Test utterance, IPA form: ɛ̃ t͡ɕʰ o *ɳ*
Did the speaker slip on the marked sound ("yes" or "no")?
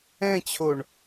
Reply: no